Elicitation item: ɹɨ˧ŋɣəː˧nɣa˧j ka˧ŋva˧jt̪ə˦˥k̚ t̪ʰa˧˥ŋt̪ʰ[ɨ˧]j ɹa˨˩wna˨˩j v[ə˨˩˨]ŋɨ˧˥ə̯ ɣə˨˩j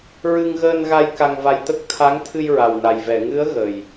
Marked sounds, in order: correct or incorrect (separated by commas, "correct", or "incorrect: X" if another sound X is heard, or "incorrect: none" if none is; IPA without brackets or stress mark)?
correct, incorrect: ɛ˨˩˨